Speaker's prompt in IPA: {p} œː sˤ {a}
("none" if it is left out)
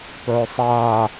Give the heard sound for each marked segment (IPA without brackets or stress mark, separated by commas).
p, aː